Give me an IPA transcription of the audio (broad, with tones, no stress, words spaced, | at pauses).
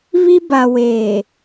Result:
βi˦ba˨ weː˨